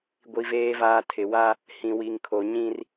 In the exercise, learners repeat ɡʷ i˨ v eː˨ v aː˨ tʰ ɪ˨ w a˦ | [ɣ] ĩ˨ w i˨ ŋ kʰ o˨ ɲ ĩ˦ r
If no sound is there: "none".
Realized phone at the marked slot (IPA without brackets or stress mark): h